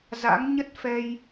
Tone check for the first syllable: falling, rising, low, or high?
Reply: rising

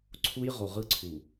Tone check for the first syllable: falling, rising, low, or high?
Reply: high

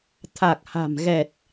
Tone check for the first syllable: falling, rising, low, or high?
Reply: low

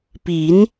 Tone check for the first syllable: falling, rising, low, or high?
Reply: rising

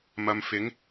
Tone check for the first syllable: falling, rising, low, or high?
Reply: low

